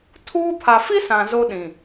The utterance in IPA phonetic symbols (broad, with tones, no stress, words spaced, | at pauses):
tʰuː˦ pʰa˨fi˦sã˨ zo˦ɗĩ˨